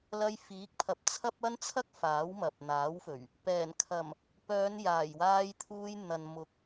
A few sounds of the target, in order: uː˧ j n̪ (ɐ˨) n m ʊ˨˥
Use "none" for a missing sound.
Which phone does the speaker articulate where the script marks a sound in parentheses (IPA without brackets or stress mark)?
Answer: ɐ˨